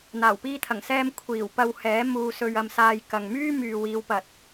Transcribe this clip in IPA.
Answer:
n̪ aː˨˩ w p iː˧ t̪ʰ ɐ˨˩ ŋ s ɛː˧ m kʷʰ iː˨˩ w p ɐ˧ w h ɛː˨˥ m uː˨ s ɵ˨ ɥ ɐ˨ m s aː˨ j k ɐ˨ ŋ m yː˥ m yː˨ w iː˨˧ w p ɐ˨ t̚

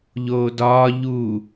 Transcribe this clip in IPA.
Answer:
ʎ oː d ɒː ʎ u

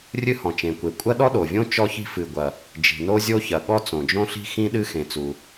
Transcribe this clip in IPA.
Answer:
rʲ ɨ˥ h ɔ̃˩ t͡ʃ ẽ˩ kʷ e˩ kʷʼ ɐ˥ ɗ ɔ˥ ɗ o˩ vʲ õ˥ t͡ʃ ɔ˥ ç i̤˥ f ɨ˩ ɡʷ ɐ˩ | d͡ʒ i̤˩ n o˥ zʲ o˥ ç ɐ˩ ɠ ɔ˥ t͡s õ˩ d͡ʒ õ˥ ɬ i̤˥ x ĩ˥ ɗ ɨ˥ x ẽ˩ t͡s u˩

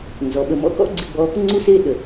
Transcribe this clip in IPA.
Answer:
n z ɔ˩˥ ɓ ə˨ m ɔ̰˥ k ɔ̰˥ ɡ͡ǀ ɪ˥ ɡ͡b ɔ˥ | ŋ͡ǀ u˥ s e˥ ɗ ə˨

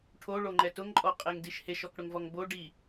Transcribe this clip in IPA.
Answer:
ʈʰ o ɭ o ŋ͡ǃ ɛ t ʊ ŋ ǃʼ ɔ qʼ e ŋ d i ʃ h e ʃ ɔ k ɽ ʊ ŋ v ɔ ŋ b o ɖ i

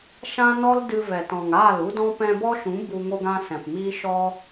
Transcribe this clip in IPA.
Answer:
ʃ ã˦ n ɔ˦ l d ɨ˧ v ɛ˨ t ɔ̃˨ ŋ aː˦˨ l u˦ d ɔ̃˦ p ɛ̃˧ b ɔ˦ ʃ ũ˨˦ b u˧ ŋ o˧ ɡ ã˧ s ɛ̃˨ p m iː˦ ʃ ɔ˦

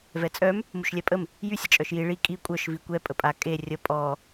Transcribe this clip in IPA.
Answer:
v ɛ t͡sʼ œ m | m u ʃ lʲ ɛ pʼ ə m | j y sʲ ə t͡ʃʼ œ ʃ j i ɭ i kʼ i kʷʼ œ ʃ v i kʷ ɛ pʼ ə pʼ a kʼ e rʲ ə pʼ ɔ

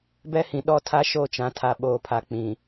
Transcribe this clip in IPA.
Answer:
b ɛ˦ h ĩ˨ ɗ ɔ˦ tʰ a˦ ʃ o˦˨ t͡ʃ ã˨ tʰ a˨ ɓ oː˨ pʰ a˨ k͡p ĩ˨

